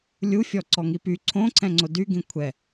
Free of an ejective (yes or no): yes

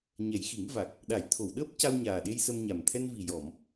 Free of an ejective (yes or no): yes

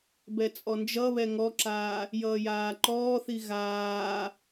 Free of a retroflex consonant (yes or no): yes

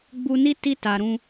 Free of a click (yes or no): yes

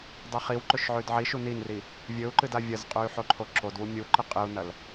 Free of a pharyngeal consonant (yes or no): no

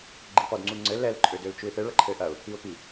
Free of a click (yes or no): no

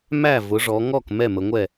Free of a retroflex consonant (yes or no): no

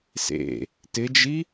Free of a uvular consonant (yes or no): yes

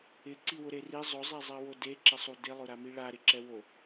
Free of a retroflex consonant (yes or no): no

